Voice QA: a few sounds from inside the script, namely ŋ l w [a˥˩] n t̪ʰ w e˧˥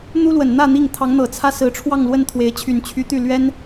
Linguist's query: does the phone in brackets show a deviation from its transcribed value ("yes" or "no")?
yes